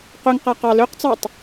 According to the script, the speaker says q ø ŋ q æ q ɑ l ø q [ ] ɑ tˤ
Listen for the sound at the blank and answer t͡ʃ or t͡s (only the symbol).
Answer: t͡s